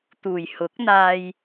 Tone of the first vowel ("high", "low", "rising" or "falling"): low